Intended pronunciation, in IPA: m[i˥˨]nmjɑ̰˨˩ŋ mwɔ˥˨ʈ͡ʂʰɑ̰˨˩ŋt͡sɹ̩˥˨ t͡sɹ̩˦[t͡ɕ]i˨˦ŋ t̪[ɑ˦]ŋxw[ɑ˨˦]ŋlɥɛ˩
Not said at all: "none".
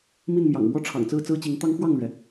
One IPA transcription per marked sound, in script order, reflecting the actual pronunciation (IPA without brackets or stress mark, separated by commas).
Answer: i˥˨, t͡ɕ, ɑ˦, ɑ˥˨